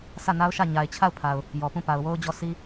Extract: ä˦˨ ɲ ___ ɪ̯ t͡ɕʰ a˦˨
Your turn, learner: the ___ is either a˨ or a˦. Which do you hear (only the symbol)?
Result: a˨